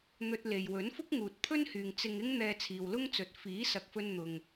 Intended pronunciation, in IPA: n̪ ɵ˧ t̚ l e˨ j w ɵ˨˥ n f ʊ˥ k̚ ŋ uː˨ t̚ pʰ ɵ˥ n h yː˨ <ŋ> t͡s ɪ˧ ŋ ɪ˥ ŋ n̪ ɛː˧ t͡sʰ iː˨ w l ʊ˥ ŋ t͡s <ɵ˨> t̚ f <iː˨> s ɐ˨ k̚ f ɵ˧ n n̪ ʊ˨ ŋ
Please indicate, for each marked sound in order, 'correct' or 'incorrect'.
correct, incorrect: ɵ˨˥, incorrect: iː˨˥

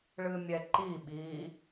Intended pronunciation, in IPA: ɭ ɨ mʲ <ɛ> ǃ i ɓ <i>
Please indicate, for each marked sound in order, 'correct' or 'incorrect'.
correct, correct

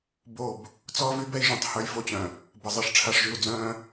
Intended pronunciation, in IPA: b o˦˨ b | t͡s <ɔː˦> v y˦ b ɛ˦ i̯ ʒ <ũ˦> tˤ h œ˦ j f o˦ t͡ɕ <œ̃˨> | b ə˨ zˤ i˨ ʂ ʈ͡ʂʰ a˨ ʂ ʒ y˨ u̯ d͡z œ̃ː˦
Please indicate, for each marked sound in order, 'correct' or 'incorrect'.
correct, incorrect: ũ˨, correct

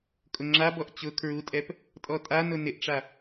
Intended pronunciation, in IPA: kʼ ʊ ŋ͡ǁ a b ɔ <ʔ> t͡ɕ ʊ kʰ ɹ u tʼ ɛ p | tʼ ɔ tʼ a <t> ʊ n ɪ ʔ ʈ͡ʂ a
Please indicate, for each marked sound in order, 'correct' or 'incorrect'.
correct, incorrect: n

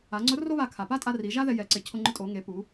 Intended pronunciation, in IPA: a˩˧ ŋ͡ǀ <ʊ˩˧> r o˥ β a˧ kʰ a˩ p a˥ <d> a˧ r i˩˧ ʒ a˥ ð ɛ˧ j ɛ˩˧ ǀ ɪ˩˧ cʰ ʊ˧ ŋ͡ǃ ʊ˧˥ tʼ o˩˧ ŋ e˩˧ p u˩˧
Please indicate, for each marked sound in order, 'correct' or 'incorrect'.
incorrect: ʊ˧˥, incorrect: tʼ

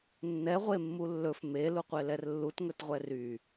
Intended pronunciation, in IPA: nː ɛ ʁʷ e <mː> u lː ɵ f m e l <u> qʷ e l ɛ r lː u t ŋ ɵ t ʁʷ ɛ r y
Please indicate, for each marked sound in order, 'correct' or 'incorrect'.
correct, correct

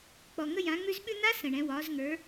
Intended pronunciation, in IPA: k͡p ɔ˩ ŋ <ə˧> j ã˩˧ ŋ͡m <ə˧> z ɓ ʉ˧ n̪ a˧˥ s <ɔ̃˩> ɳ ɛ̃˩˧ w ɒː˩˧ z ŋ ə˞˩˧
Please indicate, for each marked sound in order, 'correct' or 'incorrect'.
correct, incorrect: ʉ˧, incorrect: ə̃˩

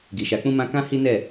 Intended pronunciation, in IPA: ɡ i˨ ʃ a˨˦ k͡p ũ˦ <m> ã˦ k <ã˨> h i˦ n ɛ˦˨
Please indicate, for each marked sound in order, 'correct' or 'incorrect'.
correct, incorrect: ã˦

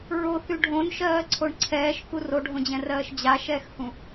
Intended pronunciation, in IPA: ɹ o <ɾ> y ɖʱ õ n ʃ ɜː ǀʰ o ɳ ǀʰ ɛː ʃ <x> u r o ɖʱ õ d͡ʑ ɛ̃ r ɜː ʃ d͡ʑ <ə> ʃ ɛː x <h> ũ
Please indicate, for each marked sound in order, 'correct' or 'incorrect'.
incorrect: θ, incorrect: k, incorrect: a, correct

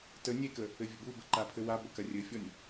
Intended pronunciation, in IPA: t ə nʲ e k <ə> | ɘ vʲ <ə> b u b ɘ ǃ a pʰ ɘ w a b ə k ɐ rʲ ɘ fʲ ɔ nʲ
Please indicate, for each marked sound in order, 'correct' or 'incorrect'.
correct, correct

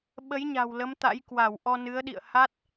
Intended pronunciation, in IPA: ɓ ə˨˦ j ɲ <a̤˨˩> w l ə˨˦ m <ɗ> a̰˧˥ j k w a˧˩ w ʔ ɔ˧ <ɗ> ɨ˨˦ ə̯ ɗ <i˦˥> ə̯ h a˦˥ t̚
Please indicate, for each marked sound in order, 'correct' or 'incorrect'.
correct, incorrect: t̪, incorrect: n, incorrect: ḭ˧˨

